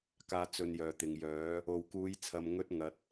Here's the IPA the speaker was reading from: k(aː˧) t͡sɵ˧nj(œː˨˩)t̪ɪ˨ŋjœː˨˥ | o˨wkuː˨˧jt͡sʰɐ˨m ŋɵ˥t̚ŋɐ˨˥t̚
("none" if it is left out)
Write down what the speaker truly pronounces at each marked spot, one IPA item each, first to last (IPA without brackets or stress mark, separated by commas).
aː˧, œː˨